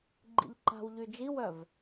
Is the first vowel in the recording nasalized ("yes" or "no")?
no